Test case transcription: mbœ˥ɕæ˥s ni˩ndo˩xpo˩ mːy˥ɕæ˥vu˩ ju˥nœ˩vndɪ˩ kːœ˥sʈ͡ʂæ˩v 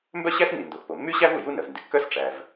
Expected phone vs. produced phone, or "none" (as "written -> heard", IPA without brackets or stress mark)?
none